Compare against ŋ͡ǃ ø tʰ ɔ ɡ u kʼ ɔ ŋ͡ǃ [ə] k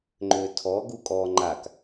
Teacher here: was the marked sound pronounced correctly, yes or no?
no